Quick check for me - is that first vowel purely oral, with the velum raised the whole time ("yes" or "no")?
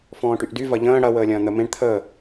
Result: no